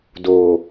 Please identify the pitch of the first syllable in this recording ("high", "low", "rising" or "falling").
low